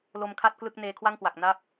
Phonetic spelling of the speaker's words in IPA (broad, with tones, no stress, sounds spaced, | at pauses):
l o˧ m kʰ a˥˩ t̚ k l ɯ˥˩ k̚ n eː˧ kʰ w a˥˩ ŋ k w a˨˩ k̚ n a˦˥ p̚